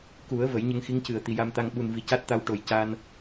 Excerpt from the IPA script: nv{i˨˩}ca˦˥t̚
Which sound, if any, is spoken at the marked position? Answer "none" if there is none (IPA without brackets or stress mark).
i˨˩